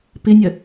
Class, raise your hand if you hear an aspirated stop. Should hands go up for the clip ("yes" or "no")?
no